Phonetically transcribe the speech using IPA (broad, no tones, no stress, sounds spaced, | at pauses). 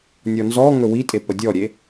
nʲ ɔ n z ɔ ŋ ɵ w i tʼ e p ə dʲ ɔ ɾʲ e